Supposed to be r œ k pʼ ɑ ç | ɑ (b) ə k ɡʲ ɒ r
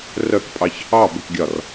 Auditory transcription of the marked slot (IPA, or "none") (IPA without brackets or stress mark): b